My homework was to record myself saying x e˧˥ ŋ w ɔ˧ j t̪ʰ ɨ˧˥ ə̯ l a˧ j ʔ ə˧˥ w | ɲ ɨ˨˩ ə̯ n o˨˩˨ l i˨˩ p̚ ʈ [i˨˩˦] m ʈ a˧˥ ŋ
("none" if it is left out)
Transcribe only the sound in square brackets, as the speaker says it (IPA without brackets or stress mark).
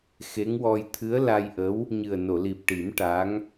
i˨˩˦